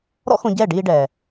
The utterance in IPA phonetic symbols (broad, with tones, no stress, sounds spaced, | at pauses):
ɾ ɔ̰˦ x õ˧ ɟ ɛː˦˨ ɖ iː˧ ɖ ɛː˨